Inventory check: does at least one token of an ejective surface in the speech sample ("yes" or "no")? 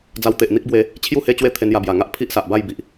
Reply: no